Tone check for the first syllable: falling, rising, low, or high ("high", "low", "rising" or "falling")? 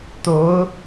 rising